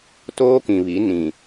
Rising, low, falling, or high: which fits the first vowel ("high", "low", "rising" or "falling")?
high